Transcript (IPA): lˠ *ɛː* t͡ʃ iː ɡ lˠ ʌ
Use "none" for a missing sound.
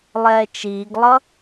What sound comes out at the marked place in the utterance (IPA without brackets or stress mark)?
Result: ɛː